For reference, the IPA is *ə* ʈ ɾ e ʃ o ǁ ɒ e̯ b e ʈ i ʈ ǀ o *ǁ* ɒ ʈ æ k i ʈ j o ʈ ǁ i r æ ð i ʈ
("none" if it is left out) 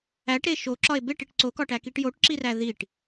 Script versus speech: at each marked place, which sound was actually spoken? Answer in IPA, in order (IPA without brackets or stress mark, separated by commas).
æ, k